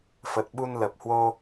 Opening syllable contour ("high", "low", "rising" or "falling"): low